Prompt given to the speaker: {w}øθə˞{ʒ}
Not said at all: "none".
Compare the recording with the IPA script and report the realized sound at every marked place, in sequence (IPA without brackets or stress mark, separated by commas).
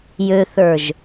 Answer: j, ʒ